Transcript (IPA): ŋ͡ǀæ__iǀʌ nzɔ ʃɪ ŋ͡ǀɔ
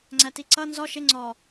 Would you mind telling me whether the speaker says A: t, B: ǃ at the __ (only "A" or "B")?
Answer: A